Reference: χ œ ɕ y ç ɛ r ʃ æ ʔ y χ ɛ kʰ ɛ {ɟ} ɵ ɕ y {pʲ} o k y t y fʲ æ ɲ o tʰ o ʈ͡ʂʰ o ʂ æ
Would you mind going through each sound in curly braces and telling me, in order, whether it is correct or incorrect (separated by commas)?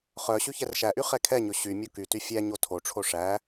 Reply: incorrect, incorrect